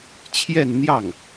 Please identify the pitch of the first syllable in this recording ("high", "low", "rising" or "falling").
falling